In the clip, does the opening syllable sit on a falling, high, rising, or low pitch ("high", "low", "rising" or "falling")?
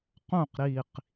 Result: falling